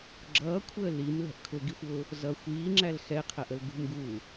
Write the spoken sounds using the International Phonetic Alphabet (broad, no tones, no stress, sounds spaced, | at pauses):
ɡ͡ǁ ʌː kʷʰ əː l i m l ɛ̤ ʔ kʰ ʊ ɡ i xʷ ʊː | z ʌ xʷ iː ŋ͡ǁ æ l x ɛ qʰ æ ʔ ə l ɡ ṳ m ɡ uː